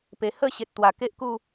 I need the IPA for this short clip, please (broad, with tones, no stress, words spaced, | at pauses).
pe˨˩hə˥˧ɕe˨t̚t̪wa˨˩ ke˦ʔku˥˧